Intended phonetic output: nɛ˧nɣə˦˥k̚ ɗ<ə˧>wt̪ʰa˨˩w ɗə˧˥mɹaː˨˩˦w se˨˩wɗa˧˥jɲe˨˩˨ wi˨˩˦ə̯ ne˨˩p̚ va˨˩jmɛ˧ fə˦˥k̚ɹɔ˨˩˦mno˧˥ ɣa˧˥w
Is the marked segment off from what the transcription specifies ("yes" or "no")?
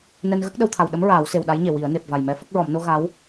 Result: no